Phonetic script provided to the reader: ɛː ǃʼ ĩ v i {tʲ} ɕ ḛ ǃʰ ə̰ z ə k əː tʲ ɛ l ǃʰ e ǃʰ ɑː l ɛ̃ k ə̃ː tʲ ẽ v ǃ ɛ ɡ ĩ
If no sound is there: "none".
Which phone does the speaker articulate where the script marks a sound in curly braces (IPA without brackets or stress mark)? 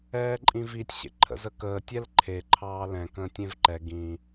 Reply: tʲ